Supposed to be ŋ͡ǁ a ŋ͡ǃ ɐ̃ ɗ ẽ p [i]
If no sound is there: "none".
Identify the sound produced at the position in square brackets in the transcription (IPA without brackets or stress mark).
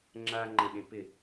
ɪ